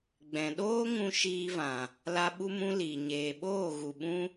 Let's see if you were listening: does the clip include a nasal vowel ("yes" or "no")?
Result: yes